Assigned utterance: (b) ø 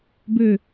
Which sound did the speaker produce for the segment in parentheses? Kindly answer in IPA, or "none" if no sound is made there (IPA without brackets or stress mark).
b